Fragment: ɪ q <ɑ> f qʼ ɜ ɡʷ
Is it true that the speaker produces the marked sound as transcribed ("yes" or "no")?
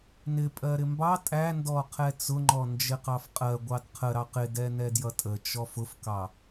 yes